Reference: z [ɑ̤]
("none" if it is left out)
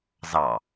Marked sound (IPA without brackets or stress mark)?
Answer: ɑ